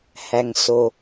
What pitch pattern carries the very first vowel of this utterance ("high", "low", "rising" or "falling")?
low